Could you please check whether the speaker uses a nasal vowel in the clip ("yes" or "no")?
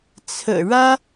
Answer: no